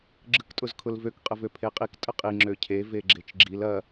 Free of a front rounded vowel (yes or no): no